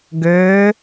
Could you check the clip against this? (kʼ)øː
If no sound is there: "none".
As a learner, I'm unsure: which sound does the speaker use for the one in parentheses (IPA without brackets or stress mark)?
ɡ